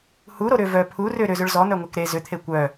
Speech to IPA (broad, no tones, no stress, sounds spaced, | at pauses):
h u ɾ o ɾ ʏ v œ pʰ u r ʏ ɾ ʏ z ʏ ɭ z ɔ n̪ œ ŋʷ e k ɾ e z ʏ t̪ʰ e kʷ œ